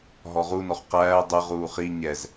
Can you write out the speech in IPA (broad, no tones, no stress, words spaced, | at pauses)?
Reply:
ɦɔʁunɔχ qæː dˤə ʁuːχi ɲɛz